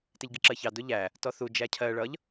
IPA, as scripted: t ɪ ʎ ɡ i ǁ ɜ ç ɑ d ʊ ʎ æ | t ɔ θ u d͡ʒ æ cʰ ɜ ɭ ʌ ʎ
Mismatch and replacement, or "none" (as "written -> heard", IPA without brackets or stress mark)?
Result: none